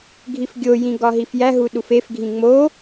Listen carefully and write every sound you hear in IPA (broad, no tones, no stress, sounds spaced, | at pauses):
ɡʱ i f ɡʲ o j ĩ ɡ ɒ ɦ i f j æ ɦ u ɗ u f e f ɡʱ ĩ ŋ͡m o